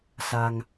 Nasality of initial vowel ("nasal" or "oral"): oral